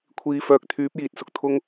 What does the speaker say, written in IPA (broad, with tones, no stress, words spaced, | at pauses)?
kʷʰiː˨fœː˨k̚ t̪ʰyː˨˥p̚jiː˨t̚ sʊ˨k̚t̪ʰʊ˧ŋ